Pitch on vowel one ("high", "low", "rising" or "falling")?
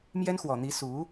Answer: high